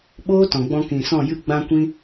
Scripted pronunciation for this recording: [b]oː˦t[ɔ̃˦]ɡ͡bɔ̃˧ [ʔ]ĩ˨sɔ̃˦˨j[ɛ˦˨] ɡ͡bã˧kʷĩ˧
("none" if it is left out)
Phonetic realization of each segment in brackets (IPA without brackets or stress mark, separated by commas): ɓ, ɔ̃˨, k, ɨ˦˨